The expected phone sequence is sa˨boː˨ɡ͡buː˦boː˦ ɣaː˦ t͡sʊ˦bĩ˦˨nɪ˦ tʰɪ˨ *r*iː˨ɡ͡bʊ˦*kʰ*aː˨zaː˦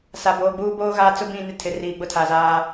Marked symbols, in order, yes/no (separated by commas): yes, no